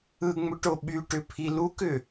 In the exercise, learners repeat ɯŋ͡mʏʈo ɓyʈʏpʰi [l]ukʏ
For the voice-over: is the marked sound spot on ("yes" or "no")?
yes